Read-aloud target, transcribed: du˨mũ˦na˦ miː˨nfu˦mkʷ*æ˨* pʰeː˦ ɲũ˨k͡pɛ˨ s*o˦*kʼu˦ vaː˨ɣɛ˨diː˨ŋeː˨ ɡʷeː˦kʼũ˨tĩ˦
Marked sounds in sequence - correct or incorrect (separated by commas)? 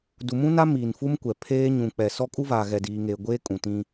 incorrect, incorrect